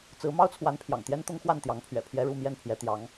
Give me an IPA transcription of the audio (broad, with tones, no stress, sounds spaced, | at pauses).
t͡s ɹ̩˧˥ m ɑ˥ ʊ̯ t͡sʰ w a˧˥ n pʰ j ɑ̰˨˩ ŋ t̪ j ɛ˥ n t̪ ʊ˥ ŋ x w a˥˩ n t̪ j ɑ˧˥ ŋ pʰ ɥ ɛ̰˨˩ pʰ j ɛ˥ ɻ u˥˧ m j ɛ˥˩ n pʰ j ɛ˧˥ t̪ j ɑ˧˥ ŋ